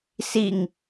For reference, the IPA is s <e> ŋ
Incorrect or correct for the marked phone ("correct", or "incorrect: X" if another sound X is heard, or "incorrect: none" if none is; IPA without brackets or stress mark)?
incorrect: i